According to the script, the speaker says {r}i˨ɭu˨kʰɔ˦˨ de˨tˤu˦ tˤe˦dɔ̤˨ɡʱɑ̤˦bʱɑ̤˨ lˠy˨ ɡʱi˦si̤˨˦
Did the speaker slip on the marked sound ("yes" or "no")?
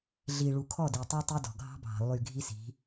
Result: yes